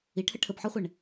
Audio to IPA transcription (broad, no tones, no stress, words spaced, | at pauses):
iʈʰə ʈʰəbħɔχʷɛɳ